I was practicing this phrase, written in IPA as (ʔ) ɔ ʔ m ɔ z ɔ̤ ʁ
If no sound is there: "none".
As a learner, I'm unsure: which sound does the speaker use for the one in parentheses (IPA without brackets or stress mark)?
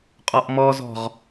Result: qʼ